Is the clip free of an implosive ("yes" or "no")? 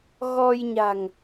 yes